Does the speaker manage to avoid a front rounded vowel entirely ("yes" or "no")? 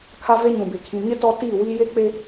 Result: yes